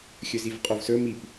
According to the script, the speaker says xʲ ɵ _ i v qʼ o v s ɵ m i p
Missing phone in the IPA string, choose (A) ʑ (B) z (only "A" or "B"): B